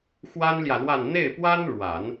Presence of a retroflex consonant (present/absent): present